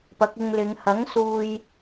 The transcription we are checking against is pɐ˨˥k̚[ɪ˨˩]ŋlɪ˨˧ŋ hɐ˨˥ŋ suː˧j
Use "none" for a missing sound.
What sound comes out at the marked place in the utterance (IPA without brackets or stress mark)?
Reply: ɪ˧